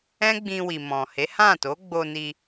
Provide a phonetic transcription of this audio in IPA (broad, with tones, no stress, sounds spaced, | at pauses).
ɛ̃˦ ɡ͡b ĩ˧ w i˨ m ɔ̃˨ h e˨˦ h ã˦˨ t o˨˦ ɡ͡b o˧ n i˧